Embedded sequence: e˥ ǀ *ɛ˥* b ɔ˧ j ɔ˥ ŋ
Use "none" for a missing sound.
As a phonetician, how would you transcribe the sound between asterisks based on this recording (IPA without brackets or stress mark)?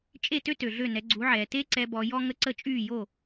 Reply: ɛ˧